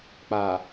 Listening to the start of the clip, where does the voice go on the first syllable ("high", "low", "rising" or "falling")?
low